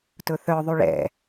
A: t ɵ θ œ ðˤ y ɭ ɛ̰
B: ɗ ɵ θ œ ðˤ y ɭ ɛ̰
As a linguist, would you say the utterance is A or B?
A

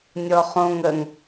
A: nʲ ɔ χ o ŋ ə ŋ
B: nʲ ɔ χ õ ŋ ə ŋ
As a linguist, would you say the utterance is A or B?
B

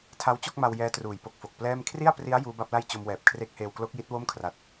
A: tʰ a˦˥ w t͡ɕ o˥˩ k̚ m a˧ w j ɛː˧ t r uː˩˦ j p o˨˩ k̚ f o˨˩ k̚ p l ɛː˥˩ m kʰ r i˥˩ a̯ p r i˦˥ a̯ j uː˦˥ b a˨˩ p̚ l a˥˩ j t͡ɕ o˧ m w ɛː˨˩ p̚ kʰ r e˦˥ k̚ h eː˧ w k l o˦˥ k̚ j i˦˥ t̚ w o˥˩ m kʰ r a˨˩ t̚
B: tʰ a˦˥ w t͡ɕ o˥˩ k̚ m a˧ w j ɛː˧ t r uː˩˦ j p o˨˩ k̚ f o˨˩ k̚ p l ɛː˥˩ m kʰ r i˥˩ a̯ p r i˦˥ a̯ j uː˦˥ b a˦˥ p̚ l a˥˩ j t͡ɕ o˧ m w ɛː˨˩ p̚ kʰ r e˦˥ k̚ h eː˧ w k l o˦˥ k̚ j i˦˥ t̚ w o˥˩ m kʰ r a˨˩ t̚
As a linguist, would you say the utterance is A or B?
B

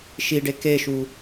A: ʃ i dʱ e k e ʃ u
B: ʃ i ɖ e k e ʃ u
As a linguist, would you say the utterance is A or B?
B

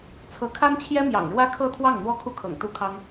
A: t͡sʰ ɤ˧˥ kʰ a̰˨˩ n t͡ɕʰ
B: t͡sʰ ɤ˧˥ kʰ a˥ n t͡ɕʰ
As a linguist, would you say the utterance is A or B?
B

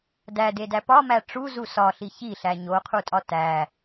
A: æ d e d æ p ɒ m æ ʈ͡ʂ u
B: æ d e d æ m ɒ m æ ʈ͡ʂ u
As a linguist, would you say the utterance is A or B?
A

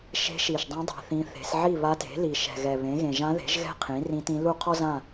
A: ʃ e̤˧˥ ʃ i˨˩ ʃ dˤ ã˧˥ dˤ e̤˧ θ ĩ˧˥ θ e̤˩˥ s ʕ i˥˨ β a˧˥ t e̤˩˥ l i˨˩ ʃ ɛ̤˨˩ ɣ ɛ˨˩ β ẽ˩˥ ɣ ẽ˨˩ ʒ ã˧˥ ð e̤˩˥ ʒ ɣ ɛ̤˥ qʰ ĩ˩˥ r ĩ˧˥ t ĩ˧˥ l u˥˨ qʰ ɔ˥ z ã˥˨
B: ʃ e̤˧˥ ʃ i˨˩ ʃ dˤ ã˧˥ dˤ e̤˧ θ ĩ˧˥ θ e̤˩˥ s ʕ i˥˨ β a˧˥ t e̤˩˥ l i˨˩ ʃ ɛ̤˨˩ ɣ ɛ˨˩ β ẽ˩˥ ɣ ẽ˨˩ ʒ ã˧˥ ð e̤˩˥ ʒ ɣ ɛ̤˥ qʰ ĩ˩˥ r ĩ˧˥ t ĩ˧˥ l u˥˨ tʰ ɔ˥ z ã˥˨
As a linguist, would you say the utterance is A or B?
A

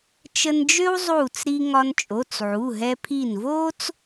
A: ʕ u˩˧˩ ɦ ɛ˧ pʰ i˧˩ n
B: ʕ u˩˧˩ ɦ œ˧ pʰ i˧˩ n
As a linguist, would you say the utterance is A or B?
A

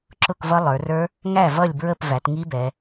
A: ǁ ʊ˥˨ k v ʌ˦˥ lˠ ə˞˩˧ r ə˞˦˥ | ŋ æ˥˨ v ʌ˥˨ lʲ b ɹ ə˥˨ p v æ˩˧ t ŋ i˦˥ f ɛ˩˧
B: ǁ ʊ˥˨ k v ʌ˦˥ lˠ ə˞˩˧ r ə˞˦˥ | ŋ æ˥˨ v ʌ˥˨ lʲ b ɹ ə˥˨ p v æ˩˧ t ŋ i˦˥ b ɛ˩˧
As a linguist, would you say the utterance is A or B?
B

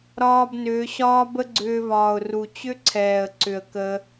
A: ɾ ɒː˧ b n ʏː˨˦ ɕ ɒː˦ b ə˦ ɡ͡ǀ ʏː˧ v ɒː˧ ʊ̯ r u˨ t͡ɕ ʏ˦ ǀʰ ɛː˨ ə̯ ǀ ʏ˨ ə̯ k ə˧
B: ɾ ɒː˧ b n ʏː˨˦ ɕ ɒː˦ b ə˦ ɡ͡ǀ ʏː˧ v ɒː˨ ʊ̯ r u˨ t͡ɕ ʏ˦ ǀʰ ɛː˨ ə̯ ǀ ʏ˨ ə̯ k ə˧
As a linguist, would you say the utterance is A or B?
B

